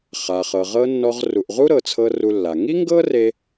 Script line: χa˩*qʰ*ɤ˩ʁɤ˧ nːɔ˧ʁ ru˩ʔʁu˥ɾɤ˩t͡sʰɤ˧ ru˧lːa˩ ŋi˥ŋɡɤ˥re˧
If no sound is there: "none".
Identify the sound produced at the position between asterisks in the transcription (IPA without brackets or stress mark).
χ